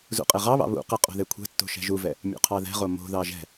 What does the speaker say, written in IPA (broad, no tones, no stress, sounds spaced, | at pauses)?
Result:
z ṵ qʼ e ʁ ɑ β ɑ̰ β ṵ q ɛ qʼ o̤ ð e kʷʰ ɛ̤ tː o̤ ʃ ɛ̤ ʒ u v ɛ | mʲ ṵ qʰ ɑ ð ɛ̤ ʁ o m o̤ ð ɑ ʒ ɛ̤